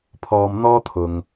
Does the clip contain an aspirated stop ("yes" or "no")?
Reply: yes